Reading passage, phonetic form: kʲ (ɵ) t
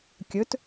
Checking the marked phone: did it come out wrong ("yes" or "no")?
no